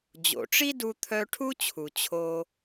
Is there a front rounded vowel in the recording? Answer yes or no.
yes